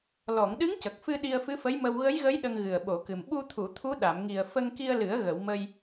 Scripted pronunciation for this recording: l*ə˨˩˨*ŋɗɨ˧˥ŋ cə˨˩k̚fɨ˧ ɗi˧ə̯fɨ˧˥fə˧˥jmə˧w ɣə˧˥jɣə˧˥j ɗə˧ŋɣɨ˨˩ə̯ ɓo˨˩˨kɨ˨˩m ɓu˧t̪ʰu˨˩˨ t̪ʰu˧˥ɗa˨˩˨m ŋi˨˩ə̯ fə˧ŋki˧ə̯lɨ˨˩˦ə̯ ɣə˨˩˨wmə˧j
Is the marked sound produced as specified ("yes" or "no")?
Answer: no